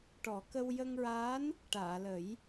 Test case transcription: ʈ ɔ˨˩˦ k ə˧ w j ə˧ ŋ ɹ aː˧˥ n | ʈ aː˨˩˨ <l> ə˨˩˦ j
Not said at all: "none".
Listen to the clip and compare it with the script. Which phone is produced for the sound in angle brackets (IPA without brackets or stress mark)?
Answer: l